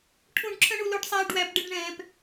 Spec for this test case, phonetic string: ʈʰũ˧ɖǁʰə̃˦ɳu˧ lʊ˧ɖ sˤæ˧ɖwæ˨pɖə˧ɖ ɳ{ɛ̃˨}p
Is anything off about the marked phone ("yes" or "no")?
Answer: no